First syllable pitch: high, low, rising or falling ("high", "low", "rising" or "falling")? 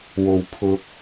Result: low